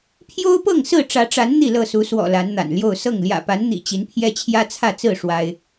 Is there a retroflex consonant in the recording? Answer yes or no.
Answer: yes